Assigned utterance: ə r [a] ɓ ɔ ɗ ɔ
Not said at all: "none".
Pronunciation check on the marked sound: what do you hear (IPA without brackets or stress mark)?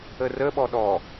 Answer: ə